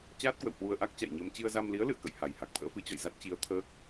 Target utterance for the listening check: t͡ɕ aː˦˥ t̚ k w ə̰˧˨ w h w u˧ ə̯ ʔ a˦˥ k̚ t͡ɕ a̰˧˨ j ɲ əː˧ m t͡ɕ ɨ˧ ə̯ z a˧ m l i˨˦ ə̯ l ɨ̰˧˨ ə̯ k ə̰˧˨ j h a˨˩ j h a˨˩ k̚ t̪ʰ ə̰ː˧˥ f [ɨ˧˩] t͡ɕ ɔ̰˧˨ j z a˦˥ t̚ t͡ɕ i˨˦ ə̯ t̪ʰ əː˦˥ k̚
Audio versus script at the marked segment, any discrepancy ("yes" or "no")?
yes